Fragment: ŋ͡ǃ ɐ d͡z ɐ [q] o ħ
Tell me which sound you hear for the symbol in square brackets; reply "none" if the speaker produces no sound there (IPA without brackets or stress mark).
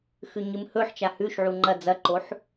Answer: ǃ